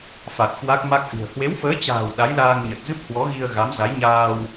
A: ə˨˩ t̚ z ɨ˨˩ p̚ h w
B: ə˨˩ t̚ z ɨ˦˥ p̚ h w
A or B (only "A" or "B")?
B